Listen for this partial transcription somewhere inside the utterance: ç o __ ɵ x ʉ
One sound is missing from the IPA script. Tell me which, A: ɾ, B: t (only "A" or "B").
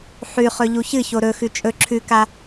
A